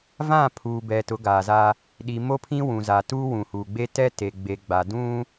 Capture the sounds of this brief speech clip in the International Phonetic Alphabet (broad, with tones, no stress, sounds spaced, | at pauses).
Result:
v ã˦˨ pʰ uː˨ b ɛ˨ t ʊ˨˦ ɡ aː˨ z a˦ | ɗ i˨ m o˦ pʰ ĩ˦ w ũ˨ z a˨ t uː˦ w ũ˨ h uː˨ ɡ͡b e˦ t ɛ˦ t e˨ ɡ͡b e˨ ɡ͡b a˨ d ũ˦